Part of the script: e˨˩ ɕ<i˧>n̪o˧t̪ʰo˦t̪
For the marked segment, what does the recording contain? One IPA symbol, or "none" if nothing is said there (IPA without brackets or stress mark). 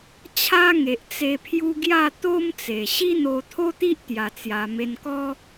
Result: i˦